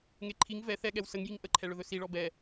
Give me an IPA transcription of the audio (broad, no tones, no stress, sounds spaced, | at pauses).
ŋ e ǃʰ i ŋ v ɛ θ ɛ ɠ ɛ w s ə ŋ j i ŋ ʔ ə ǃʰ ɛ ɭ ɵ ð ɵ s i ɭ ɔ b ɛ